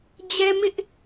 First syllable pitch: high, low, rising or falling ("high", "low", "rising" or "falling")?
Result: high